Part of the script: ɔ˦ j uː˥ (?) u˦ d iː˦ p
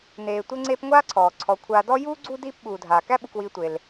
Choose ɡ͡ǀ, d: ɡ͡ǀ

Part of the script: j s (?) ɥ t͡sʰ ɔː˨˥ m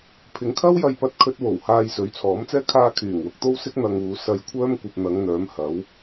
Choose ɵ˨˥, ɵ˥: ɵ˨˥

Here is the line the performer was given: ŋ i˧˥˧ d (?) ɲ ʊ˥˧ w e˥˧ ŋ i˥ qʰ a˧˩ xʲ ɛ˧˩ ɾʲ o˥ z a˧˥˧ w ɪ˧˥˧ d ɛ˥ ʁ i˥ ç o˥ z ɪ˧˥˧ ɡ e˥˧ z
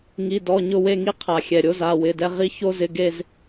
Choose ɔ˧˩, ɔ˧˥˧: ɔ˧˥˧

